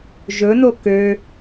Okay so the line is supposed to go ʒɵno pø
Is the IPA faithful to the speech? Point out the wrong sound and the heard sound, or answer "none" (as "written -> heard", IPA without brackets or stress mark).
p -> k